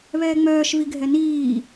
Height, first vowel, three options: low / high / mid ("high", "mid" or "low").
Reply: mid